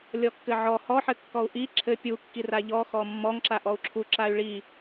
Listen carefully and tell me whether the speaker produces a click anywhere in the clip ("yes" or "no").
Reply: yes